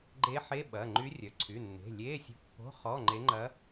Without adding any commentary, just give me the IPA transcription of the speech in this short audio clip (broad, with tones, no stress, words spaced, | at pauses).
ɡ͡ǃe˧˥ħe˧˥˧ ɓɐ˩˧˩ ŋ͡ǃy˧˥ rʲœ˩˧˩ ǀʰy˩˧˩nːe̤˩˧˩ lʲe˧˥˧sʲo̤˧˥pːo̤˧˥˧ χɔ˧˥˧ŋ͡ǃe˧˥ŋ͡ǃɐ˧˥